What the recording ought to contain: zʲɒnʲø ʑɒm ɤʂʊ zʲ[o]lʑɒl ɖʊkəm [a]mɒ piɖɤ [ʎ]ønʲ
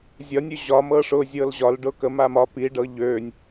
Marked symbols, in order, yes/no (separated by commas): no, yes, yes